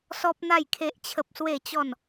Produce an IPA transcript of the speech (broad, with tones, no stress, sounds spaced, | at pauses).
s ɔ˦ p̚ n̪ a˥˧ j kʰ e˦ ʔ t͡ɕʰ ə˦ p̚ s w e˥˧ t͡ɕ ɔ˥˧ n